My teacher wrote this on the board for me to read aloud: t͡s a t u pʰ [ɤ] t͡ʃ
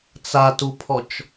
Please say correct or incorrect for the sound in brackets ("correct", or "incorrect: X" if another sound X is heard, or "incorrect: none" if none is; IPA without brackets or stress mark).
incorrect: ɔ